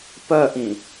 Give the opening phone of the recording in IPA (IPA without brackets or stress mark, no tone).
p